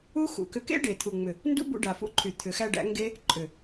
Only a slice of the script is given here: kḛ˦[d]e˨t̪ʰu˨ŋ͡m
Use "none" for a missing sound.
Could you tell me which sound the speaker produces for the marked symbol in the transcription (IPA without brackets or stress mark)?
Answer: ɖ